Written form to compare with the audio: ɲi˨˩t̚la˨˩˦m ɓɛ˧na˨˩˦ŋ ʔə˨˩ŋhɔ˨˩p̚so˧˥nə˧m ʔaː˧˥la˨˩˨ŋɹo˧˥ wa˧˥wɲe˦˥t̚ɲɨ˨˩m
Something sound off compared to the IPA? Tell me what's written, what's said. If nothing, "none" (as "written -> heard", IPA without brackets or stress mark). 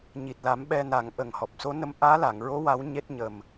ɨ˨˩ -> ə˨˩